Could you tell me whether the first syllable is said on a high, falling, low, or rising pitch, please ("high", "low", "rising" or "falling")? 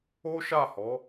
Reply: high